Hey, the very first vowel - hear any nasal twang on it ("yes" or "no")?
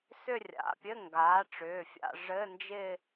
no